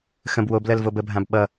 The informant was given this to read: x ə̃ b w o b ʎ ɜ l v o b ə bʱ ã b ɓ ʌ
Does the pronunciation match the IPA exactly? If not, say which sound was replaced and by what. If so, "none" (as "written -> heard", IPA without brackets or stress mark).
ʎ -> l